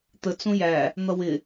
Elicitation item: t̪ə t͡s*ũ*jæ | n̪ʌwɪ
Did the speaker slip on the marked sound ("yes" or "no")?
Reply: no